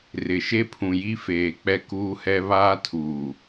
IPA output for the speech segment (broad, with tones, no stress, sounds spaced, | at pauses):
r ɪ˨ ʃ e˦ pʰ ũ˨ j i˦ f eː˨ k͡p ɛ˦ k uː˦ h ɛ˦ β aː˦ tʰ uː˨